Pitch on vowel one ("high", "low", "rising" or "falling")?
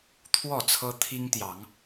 falling